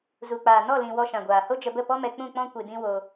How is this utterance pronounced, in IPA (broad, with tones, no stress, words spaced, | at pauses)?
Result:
zu˨k͡paː˨ nɔ˦˨lĩ˨ wɔ˧ʃã˨ɡʷaː˨ ho˦d͡ʒə˧bə˦˨ pɔ˦mɛ˧ k͡pũ˦˨k͡pɔ̃˦kʷɨ˨ dĩ˦wo˧